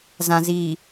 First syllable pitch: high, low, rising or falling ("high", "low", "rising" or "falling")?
low